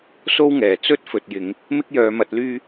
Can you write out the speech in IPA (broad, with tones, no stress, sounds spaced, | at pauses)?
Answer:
s o˥ w ŋ ɛː˨˩ t͡s ɵ˥ t̚ f ɵ˨ t̚ j ɪ˨˧ ŋ | m ɪ˥ k̚ j œː˨˧ m ɐ˨˥ t̚ l yː˥